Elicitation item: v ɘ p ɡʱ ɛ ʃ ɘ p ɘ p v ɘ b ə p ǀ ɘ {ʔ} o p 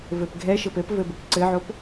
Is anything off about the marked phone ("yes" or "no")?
yes